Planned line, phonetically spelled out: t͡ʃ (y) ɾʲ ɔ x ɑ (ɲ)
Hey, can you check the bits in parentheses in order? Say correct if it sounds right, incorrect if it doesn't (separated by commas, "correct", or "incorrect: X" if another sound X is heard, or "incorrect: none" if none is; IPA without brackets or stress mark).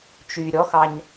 correct, correct